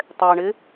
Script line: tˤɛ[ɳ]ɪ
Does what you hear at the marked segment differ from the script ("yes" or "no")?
no